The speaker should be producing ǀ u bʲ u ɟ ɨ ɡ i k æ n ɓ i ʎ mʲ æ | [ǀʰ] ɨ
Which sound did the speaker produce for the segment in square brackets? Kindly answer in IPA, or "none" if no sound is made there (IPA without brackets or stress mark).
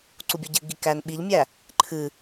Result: ǃʰ